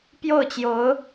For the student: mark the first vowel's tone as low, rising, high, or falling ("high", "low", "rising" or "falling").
falling